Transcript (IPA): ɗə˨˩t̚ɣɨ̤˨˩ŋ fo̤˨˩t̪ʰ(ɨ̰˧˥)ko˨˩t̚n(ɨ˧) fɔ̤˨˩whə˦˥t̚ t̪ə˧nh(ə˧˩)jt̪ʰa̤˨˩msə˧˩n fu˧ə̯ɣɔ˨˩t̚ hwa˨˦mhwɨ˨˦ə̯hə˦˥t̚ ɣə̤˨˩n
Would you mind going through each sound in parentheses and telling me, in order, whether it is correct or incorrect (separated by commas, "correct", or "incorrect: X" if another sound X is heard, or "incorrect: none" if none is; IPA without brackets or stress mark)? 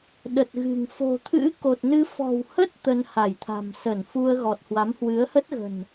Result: correct, correct, incorrect: a˧˩